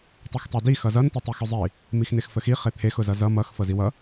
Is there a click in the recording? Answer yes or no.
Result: no